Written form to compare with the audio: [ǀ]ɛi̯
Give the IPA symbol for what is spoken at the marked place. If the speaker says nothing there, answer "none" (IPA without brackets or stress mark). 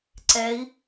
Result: ǀ